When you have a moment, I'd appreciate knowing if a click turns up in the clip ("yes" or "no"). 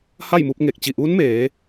no